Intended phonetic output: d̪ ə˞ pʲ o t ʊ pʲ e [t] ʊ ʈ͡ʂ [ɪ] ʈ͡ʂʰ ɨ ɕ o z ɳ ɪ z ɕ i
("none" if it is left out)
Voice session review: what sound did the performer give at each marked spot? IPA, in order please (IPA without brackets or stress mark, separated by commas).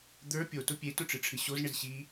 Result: t, ɨ